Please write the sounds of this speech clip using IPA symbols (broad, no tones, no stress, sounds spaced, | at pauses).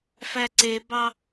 f æ ǀ e b ɑ